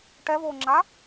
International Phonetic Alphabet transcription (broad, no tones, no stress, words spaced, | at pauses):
ʈɛvoːŋ͡ǁa